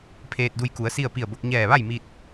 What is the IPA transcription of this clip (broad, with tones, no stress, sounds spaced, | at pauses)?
pʰ eː˧ t̚ d u˧ j k u˩˧ ə̯ s i˥˨ ə̯ p i˧˩ ə̯ b o˧ k̚ ɲ ɛː˧˩ ʋ a˥˨ j m i˧ t̚